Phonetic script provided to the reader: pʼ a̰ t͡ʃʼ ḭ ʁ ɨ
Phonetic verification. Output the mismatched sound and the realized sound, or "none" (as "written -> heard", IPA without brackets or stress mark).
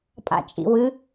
ʁ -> w